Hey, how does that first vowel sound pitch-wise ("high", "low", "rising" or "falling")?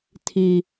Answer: low